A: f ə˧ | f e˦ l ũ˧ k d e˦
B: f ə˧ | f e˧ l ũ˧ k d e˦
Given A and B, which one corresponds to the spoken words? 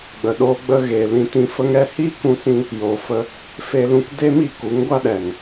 B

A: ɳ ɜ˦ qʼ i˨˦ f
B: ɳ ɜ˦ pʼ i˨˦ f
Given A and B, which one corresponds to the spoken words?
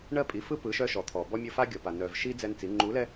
B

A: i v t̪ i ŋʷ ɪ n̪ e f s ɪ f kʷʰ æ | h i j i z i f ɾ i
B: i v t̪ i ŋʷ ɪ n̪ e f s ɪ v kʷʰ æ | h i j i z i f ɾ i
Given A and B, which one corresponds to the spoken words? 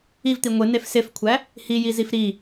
A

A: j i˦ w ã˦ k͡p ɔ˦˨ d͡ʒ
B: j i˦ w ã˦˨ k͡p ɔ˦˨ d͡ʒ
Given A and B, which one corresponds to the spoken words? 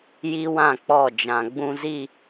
B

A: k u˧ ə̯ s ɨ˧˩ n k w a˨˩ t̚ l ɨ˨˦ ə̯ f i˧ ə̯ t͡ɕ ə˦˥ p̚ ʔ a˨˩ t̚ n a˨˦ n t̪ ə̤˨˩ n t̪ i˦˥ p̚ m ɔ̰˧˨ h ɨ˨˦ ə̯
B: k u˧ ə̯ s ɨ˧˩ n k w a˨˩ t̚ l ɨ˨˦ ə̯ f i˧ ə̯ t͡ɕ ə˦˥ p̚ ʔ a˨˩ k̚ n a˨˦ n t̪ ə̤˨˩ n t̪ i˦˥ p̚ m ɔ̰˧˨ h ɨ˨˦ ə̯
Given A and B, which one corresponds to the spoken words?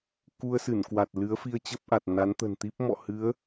A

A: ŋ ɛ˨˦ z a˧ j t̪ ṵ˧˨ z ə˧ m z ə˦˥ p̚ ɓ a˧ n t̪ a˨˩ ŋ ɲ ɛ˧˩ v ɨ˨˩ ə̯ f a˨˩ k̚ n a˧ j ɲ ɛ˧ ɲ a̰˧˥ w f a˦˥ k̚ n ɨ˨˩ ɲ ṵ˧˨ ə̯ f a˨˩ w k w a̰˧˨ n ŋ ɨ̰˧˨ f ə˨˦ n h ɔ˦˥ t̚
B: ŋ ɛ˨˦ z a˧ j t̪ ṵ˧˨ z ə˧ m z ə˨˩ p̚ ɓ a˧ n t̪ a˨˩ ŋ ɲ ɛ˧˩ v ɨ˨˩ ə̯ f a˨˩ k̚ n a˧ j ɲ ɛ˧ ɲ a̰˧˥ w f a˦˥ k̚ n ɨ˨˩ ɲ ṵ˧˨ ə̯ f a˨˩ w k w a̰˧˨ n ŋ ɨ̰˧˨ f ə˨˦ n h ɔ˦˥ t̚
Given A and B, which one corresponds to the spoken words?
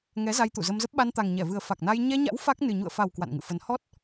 A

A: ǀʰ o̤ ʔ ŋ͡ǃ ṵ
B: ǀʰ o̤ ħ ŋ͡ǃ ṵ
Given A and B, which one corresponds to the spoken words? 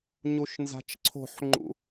B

